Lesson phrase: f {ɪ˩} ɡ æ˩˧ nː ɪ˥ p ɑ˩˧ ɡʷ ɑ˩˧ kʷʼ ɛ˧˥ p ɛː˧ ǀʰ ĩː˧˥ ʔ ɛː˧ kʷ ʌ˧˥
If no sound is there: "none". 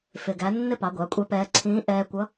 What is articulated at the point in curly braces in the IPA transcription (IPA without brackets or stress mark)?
ɪ˩